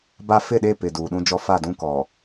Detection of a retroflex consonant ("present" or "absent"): absent